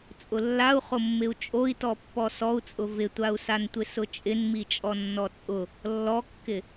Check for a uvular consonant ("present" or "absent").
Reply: present